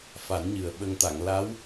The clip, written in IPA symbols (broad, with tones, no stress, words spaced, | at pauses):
fa˨˩˦nɲɨ˨˩ə̯ɓə˧ŋ t̪a˨˩˨ŋla˧˥w